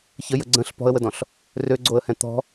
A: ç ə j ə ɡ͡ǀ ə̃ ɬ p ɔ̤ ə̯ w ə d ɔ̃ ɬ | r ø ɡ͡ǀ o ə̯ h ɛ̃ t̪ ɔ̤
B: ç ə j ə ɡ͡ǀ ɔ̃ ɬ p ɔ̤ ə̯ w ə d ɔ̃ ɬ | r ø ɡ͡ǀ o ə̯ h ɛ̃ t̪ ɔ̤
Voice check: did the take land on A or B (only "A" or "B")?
A